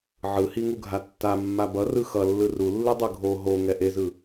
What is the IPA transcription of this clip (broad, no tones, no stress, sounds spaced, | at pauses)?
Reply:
ʕ ɯ h i ŋ u ɡʱ a tː a mː a b ʌ r ɯ x ʌ lː ɯ r u lː ɯ dˤ ɯ ɡʱ o ɦ o ŋ ɛ ʔ e z ɯ